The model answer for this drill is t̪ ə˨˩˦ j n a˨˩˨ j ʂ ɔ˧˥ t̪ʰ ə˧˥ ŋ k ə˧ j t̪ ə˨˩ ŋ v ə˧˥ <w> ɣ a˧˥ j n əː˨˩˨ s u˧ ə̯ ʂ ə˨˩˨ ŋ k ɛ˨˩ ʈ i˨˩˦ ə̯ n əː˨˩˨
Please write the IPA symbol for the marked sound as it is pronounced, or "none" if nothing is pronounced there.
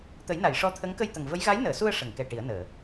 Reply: j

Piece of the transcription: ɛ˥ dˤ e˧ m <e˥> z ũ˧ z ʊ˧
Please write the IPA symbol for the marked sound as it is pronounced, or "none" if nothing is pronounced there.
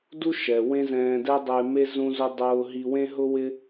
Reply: e˥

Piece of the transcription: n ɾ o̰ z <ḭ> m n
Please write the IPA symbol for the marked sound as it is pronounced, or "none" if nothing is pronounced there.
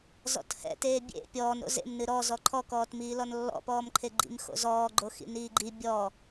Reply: ḛ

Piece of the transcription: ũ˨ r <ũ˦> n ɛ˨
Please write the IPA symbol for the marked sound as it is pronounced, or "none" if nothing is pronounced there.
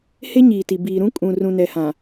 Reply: ũ˨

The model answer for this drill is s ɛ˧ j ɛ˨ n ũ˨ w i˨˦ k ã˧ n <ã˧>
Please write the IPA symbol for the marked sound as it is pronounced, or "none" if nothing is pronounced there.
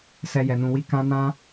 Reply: ã˧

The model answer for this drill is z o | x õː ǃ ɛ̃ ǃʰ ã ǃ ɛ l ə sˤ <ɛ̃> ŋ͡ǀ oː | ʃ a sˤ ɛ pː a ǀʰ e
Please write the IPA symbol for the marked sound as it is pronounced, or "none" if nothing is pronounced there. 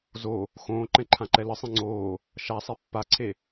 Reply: ẽ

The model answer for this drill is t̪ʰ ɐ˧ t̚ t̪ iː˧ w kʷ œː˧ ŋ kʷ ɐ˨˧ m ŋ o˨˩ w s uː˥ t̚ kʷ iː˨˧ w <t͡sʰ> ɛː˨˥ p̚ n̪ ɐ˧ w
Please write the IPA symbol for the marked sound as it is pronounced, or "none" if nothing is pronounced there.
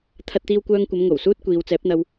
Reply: t͡s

